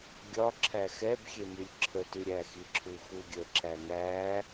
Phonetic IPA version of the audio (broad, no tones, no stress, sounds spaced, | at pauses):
ɡʲ ɒ ǁʰ æ x ɛ b xʲ e m y lʲ ǁʰ ə t y ɾʲ æ x i ǁʰ u x u ɡʲ ə ǁ æ ŋ æ